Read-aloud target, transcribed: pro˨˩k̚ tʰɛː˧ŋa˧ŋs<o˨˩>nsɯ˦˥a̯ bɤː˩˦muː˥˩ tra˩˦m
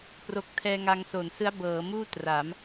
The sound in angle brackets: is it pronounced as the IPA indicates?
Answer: yes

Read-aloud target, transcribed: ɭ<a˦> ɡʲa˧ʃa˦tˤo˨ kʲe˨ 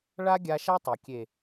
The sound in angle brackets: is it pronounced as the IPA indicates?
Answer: yes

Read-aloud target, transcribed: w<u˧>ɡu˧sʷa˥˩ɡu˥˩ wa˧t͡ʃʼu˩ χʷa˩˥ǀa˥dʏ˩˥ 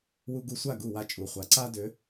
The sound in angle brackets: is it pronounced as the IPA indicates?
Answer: yes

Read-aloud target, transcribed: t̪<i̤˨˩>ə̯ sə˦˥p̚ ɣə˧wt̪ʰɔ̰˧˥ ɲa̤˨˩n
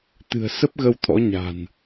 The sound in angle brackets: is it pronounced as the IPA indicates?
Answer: no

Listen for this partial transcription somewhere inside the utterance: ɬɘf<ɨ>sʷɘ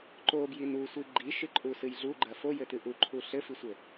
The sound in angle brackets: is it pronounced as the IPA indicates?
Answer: no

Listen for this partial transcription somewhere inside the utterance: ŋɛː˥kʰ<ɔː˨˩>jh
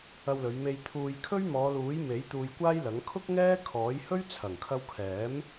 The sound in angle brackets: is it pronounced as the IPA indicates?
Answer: no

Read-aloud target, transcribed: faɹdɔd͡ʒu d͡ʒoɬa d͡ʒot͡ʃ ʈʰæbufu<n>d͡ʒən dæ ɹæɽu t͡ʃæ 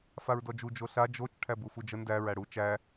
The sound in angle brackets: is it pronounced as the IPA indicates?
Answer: no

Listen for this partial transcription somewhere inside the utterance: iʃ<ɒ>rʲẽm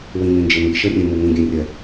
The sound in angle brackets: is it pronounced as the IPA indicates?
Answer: no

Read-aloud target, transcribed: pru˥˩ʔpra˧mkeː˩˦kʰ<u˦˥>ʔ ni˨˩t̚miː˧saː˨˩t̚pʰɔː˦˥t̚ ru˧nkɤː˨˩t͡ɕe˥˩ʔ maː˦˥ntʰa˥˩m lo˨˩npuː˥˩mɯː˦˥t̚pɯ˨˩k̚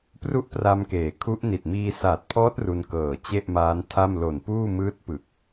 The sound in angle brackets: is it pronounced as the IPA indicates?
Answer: yes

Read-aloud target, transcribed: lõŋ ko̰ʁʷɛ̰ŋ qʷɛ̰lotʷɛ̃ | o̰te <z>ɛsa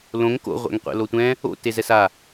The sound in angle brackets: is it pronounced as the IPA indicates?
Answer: yes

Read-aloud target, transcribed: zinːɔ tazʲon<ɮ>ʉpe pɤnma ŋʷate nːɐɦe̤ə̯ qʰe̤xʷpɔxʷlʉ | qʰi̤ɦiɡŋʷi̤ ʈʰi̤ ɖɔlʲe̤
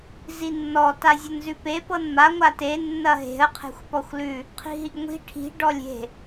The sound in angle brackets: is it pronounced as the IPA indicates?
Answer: no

